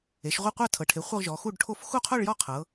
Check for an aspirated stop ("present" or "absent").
present